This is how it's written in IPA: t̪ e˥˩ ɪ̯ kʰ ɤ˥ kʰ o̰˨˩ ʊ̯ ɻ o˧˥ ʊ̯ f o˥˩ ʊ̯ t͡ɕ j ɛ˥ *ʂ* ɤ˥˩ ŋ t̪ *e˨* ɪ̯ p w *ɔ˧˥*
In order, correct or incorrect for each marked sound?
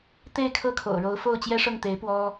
correct, incorrect, incorrect

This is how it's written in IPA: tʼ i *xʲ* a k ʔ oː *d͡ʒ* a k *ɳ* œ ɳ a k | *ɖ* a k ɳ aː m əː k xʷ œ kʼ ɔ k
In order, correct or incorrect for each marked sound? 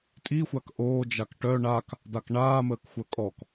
incorrect, correct, incorrect, incorrect

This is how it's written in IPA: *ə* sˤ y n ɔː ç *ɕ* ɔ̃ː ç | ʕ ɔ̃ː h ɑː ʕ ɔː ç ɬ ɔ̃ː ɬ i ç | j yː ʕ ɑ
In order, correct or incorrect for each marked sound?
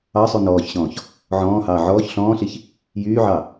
incorrect, correct

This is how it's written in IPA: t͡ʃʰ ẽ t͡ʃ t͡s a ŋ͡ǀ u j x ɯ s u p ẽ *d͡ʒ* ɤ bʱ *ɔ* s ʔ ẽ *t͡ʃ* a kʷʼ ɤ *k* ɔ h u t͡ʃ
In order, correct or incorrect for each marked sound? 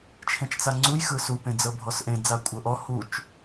incorrect, correct, incorrect, incorrect

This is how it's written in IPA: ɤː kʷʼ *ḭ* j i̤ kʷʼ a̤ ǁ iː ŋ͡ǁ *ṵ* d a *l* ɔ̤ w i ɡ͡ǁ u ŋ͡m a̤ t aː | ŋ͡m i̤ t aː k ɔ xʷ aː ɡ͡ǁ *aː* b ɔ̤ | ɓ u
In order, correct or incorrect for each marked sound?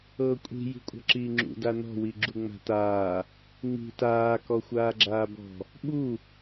incorrect, correct, incorrect, correct

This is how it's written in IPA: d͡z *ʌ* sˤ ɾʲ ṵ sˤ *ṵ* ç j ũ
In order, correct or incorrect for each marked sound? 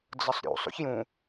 correct, correct

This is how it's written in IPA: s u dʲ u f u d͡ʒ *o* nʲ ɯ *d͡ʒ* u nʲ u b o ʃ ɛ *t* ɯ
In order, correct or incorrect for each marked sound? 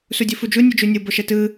incorrect, correct, correct

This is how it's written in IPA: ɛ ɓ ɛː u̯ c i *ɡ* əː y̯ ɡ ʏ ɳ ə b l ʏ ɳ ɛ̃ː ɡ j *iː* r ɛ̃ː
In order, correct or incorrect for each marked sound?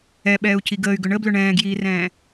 correct, correct

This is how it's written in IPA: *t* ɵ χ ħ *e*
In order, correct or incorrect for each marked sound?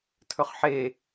incorrect, correct

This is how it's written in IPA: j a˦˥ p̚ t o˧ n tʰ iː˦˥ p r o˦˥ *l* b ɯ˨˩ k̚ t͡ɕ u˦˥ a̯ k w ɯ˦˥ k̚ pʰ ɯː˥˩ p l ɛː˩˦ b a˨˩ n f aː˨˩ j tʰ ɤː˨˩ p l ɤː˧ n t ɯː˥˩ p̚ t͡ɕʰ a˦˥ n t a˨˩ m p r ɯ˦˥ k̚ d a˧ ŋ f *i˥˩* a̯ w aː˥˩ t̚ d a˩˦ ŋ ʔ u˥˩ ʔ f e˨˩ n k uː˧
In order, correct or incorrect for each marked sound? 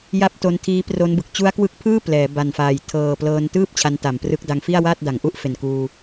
incorrect, correct

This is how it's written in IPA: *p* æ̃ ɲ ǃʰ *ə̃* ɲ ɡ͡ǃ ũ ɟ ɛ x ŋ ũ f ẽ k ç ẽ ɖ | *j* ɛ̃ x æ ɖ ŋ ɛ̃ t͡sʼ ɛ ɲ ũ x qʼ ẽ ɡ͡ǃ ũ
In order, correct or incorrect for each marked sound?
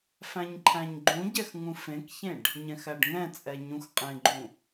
incorrect, incorrect, incorrect

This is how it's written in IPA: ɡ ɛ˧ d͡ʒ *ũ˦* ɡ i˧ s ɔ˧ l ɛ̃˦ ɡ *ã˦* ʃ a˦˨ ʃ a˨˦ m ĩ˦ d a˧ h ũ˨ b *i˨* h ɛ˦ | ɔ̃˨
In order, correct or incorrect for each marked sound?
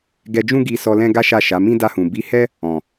correct, incorrect, incorrect

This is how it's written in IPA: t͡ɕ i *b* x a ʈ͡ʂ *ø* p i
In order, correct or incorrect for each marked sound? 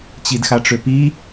incorrect, correct

